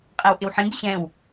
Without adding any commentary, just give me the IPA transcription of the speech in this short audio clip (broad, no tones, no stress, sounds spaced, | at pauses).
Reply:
qʼ ɛ w ʔ ɪ w ħ ĩ ɡ ɪ ɕ ɛ̃ w